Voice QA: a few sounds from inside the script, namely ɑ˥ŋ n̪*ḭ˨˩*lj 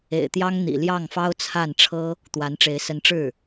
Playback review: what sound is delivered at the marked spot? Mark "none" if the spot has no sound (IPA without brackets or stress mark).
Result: ḭ˨˩